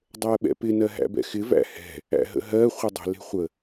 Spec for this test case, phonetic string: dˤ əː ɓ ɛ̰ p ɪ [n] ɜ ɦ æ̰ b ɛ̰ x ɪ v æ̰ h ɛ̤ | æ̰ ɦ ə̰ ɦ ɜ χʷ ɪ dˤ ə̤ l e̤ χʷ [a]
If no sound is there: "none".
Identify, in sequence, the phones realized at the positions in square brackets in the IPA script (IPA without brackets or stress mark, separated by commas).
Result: n, ə